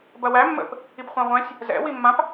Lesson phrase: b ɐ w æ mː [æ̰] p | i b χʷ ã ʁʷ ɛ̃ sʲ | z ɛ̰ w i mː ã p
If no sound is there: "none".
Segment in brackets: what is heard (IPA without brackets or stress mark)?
ə̰